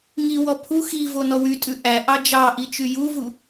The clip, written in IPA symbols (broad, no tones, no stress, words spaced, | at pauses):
ŋiwɔ pʰu xivo nɔwytʼʉ ʔæ ʔɑd͡ʒɑʔi t͡ʃyjuvu